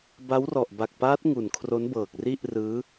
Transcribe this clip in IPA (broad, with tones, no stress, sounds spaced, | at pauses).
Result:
b a˦˥ w r ɔ˨˩ ʔ b a˨˩ k̚ p aː˦˥ t̚ ŋ u˨˩ n kʰ r o˦˥ n b ɤː˨˩ k̚ r i˥˩ ʔ r ɯː˦˥